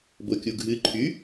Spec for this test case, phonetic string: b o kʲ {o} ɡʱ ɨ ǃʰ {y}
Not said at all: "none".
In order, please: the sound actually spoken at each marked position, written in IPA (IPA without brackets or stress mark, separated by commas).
u, y